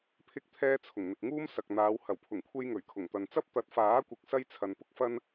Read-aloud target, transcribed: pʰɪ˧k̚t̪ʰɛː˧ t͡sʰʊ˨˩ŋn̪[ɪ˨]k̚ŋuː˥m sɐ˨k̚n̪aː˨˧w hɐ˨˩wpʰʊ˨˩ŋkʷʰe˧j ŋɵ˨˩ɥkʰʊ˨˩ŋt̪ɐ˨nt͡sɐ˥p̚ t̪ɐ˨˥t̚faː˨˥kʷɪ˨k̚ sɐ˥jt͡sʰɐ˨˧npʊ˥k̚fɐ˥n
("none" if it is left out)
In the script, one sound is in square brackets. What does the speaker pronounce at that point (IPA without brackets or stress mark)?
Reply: ɪ˨